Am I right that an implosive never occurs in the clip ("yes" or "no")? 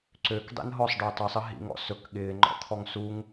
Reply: no